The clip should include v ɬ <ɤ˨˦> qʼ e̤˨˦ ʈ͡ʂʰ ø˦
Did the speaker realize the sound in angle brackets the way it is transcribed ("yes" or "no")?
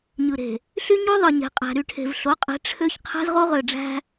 no